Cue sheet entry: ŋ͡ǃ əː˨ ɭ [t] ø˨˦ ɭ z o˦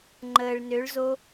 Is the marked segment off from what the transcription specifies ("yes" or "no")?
yes